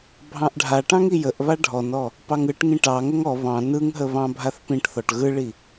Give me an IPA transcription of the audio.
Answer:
bʱ ɑ̃ ʔ ɖʱ a ʈ ɑ̃ ŋ i j ə ʔ β a ɖʱ ɔ n ɔ | p ɑ ŋ ɯ ʈ ŋ ĩ ʈ ɑ ŋ ə ŋ ɔ β ɑ̃ n ɯ ŋ ɦ ə β ɑ̃ bʱ a θ p ĩ ʈ θ ɔ ʈ ɣ ɯ ɭ i

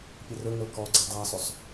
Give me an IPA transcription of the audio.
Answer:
pʲ ɘ r ɵ ŋ ə l k ɔ ɡ͡ǀ ɛ dˤ a sˤ ɵ sˤ

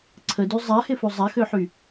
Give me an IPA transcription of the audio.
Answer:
ǀʰ ə d y zˤ a h ɪ f u zˤ a x ø ħ y

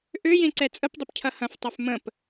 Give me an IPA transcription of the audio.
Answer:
ʔ ø j ẽ ǀ ɛ t͡sʼ ə p dˤ ʏ p cʰ ɐ h ɐ̃ f tˤ ɛ f m ə̃ p

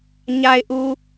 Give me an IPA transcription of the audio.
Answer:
ɲ a˨ ɪ̯ ʔ u˨

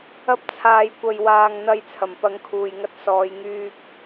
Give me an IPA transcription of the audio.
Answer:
ɐ˧ p̚ t͡sʰ aː˨ j kʷ ɐ˨ j w aː˨ ŋ n̪ ɐ˨˧ j t͡sʰ ɐ˨˩ m p ɐ˨˧ ŋ kʰ uː˨ j ŋ ɐ˧ t̚ s ɔː˨˧ j ŋ yː˧ k̚

